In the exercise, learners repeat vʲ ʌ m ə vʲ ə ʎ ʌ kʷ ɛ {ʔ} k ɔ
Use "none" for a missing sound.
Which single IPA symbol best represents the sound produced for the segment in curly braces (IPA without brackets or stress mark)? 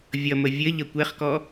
χ